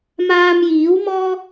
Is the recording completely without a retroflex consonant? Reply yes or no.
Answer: yes